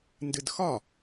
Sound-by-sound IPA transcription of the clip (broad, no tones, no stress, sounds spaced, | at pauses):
n d ɨ d x ɒ